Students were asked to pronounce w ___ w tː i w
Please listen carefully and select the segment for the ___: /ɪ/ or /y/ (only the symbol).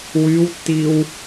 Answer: y